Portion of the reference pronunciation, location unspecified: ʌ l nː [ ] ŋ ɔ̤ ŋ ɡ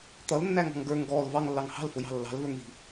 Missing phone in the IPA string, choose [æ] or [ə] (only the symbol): æ